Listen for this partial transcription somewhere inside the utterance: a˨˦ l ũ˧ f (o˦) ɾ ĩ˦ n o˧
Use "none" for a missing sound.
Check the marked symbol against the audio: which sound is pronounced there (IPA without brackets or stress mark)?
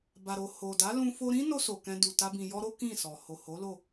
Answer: o˧